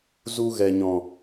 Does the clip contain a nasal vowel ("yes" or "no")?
yes